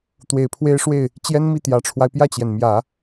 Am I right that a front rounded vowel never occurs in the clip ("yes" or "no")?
yes